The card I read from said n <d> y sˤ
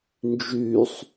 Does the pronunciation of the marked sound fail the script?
yes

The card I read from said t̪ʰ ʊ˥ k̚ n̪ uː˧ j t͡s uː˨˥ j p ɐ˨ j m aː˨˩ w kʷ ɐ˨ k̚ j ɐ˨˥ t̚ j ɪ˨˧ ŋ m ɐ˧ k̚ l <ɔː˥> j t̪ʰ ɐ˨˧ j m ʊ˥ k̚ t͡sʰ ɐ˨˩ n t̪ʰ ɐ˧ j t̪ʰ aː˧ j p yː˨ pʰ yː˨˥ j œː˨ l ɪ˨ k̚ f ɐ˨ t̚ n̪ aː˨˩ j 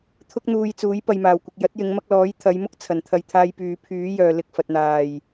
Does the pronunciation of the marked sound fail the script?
yes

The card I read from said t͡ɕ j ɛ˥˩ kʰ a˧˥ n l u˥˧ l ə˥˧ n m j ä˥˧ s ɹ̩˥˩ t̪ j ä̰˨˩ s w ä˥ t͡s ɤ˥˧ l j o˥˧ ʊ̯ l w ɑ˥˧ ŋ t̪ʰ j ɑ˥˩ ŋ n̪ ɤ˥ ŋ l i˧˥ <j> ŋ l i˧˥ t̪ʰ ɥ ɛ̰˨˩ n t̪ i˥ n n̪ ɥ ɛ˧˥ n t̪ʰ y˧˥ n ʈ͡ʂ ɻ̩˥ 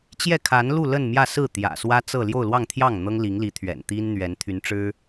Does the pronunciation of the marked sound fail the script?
yes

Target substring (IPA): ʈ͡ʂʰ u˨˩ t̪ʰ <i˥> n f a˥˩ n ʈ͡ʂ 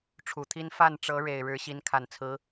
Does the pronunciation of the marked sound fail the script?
no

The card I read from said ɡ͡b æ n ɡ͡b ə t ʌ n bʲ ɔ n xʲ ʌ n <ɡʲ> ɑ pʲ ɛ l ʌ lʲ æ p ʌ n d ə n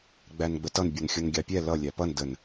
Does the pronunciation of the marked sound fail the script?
no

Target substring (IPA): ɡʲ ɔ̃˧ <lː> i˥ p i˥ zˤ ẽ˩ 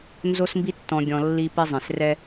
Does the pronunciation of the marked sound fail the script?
no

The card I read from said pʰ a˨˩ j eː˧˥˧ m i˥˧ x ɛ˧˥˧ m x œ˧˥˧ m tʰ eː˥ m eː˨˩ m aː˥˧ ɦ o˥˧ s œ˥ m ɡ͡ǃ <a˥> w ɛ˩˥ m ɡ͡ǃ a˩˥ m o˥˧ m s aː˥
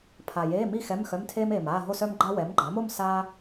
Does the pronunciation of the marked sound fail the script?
no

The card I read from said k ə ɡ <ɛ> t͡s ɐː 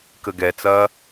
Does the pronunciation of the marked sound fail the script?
no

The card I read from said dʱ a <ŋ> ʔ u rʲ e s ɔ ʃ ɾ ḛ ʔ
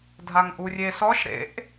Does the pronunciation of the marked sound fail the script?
no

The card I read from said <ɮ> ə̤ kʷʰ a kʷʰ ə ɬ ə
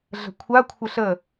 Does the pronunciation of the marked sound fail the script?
no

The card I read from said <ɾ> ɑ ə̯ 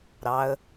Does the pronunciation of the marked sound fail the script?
no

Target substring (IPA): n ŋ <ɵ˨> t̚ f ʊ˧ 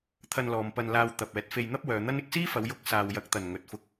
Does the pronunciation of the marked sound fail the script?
no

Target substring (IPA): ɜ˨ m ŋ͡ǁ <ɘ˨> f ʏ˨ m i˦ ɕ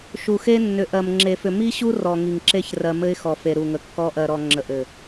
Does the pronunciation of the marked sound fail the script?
yes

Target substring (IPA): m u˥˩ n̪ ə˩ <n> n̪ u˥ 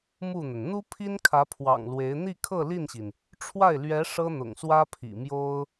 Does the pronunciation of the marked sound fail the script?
no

